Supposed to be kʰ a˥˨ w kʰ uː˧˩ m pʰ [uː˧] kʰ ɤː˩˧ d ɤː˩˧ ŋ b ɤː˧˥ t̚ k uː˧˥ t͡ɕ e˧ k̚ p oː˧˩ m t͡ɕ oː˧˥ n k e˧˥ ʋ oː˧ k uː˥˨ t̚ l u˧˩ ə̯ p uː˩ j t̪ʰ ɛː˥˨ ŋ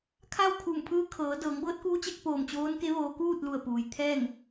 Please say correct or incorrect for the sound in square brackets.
incorrect